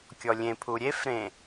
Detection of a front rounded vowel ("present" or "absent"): absent